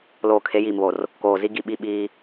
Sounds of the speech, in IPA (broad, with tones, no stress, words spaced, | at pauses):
loː˨kʰe˨˦jiː˨mβo˨r | koː˨zi˦ɡi˦˨ ɓi˦˨ ɓiː˦